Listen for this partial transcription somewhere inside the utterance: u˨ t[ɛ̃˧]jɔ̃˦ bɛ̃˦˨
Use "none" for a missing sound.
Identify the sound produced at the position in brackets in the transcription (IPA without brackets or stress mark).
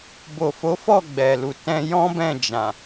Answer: ɛ̃˧